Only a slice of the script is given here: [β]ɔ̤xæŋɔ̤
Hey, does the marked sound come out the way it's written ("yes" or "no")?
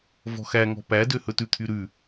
no